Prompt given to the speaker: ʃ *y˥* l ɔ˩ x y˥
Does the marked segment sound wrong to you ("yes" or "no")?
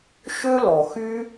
yes